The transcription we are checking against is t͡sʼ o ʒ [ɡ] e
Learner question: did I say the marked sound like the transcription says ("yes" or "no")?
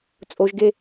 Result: yes